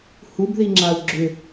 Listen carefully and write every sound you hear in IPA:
h u b ð i ŋ͡ǁ a u̯ ɡ͡ǁ ʏ

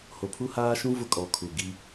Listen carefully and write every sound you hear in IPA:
h o˨ pʰ u˦ h aː˦ ʃ ũ˦ v ʊ˦ kʼ ɔ˨˦ kʰ u˨ ɡ i˦

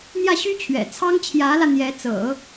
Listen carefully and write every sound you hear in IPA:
n̪ j ä˥˩ ɕ y˥ t͡ɕʰ ɥ ɛ̰˨˩ t͡sʰ ɑ˥ ŋ t͡ɕʰ j ä˧˥ l ä˧ n̪ j ɛ˧˥ t͡s ɤ̰˨˩˦

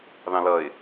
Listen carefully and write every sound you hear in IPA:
ð ɑ̃ l ʌ ɪ̯

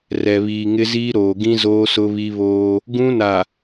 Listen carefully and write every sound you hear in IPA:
r ɛ˨ β iː˨ ŋ ɪ˦ z iː˦ ɾ oː˨ ɡ ĩ˦ z oː˦ s ʊ˦ β i˦ β oː˦ | ɡ ũ˦ n a˨

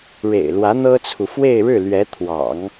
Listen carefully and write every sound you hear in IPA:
ɻ ḛ˨˩ ɪ̯ l w ä˧˥ n̪ ɤ˥ t͡sʰ u˨ f w e˥˧ ɪ̯ ɻ ɻ̩˥˩ l ɥ ɛ˧˥ t̪ʰ w ɑ̰˨˩˦ ŋ

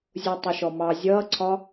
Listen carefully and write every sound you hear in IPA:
zʲ u tˤ ə ʃ ɔ m ɑ zʲ ʌː ǀʰ ɒ

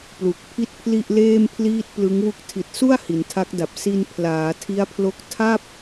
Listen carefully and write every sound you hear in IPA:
p l u˨˩ k̚ pʰ i˥˩ t̚ pʰ l i˥˩ ʔ l eː˥˩ m pʰ l iː˥˩ t̚ p l ɯ˦˥ ŋ w u˥˩ k̚ tʰ i˨˩ t̚ s u˥˩ a̯ h i˩˦ n tʰ a˦˥ k̚ d a˨˩ p̚ s i˧ n pʰ l aː˩˦ tʰ i˦˥ a̯ pʰ l o˦˥ k̚ tʰ a˥˩ p̚

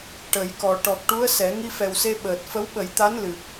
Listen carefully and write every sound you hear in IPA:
ʈ ə˨˩˦ j k ɔ˨˩ ʈ ɔ˨˩ k̚ ʈ u˧˥ ə̯ s ɛ˨˩˦ ŋ i˧ f ɛ˨˩ w s e˧ ɓ əː˨˩ t̚ f ə˧˥ w ɓ ə˨˩˦ j t̪ a˧˥ n l ɨ˨˩ p̚

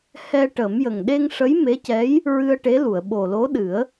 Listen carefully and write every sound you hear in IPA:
h ɛ˧ ʈ əː˨˩˦ m j ə˨˩ ŋ ɗ e˧ ŋ ʂ ə˧˥ j m e˧˥ c ɛ˧˥ j | ɹ ɨ˧ ə̯ ʈ e˧˥ l u˨˩˨ ə̯ ɓ o˨˩ l o˧˥ ɗ ɨ˨˩˦ ə̯

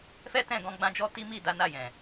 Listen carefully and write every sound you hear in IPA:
f ɛ˦ t ɛ̃˦˨ ɡ ɔ̃˧ ɡ͡b ã˧ d͡ʒ ɔ˧ t i˦ m i˦˨ d a˨˦ n a˦˨ j ɛ̃˨

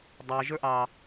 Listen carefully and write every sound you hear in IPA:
dˤ æ ʒ ə˞ ʔ ɑ

